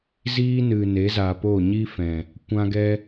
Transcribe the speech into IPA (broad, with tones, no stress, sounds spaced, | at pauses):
z iː˧ n ɨ˨ n e˨˦ z a˨ p o˦˨ ɲ i˦ f ɛ̃˨ | kʷ ã˧ ɡ ɛ˦